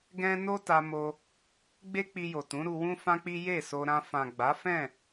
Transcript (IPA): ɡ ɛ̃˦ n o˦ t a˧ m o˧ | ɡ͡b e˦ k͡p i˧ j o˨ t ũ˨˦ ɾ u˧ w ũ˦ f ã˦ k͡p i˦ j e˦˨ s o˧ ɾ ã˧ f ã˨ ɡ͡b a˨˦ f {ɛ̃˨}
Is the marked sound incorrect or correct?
incorrect: ɛ̃˦˨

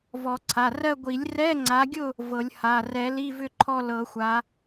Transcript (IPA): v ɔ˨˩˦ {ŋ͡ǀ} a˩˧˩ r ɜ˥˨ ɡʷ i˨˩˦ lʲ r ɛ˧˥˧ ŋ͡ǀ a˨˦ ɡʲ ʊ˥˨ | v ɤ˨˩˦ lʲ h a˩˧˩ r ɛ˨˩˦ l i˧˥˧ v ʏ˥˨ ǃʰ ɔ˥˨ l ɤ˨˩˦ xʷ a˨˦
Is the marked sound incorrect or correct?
incorrect: ǀʰ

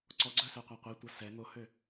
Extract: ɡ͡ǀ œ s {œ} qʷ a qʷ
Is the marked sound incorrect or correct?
correct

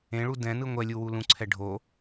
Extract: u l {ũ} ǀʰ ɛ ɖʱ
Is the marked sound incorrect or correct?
correct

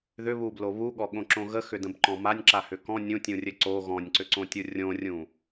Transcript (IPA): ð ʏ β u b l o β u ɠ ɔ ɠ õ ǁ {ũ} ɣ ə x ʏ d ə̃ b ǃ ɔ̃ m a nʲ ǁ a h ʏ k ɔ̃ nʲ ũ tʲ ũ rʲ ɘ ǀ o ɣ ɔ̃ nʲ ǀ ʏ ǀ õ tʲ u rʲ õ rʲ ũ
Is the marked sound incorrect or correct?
incorrect: õ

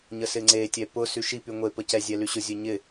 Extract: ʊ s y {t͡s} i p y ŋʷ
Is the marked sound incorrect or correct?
incorrect: ʃ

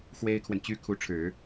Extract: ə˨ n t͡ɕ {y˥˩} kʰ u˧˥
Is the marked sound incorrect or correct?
incorrect: y˥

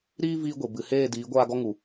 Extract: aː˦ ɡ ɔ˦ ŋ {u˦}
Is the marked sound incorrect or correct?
incorrect: u˨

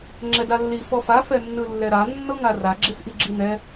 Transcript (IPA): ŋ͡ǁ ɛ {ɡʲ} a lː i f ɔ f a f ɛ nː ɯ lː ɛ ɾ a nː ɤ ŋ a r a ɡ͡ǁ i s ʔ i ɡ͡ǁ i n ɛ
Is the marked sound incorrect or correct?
incorrect: d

